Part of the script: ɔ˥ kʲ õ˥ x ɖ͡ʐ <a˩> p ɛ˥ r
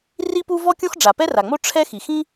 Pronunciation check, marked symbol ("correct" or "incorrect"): correct